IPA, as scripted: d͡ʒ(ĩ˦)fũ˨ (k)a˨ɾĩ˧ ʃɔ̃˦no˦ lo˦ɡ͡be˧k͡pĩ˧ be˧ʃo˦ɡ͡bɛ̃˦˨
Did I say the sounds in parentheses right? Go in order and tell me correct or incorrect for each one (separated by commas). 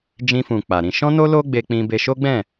incorrect, incorrect